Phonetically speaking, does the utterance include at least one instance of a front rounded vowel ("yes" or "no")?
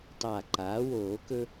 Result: no